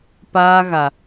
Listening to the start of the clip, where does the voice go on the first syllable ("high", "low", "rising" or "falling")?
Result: high